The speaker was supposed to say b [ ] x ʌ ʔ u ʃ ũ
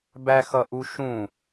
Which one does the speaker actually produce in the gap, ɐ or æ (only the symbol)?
æ